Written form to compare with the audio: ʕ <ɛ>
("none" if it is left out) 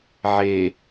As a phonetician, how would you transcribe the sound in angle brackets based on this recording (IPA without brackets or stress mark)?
e